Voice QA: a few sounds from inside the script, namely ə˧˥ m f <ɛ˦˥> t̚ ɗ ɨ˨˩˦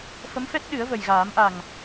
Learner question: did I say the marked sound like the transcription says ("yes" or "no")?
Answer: yes